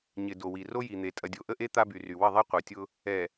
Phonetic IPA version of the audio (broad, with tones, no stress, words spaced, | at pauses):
ɲɪ˨ do˨wi˨ ro˦ji˨n̪e˨ tʼɐ˨dʲo˨ʔə˦ʔe˦ t̪a˦by˨ry˨ wə˦˨ðˤi˦qʷœ˨tʲʊ˦ | ɛ˨